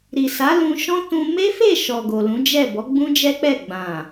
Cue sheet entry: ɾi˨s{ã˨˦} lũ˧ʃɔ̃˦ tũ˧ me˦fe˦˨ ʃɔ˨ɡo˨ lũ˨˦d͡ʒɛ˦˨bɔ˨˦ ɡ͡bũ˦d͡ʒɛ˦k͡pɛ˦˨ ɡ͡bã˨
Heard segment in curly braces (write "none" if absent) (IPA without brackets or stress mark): a˨˦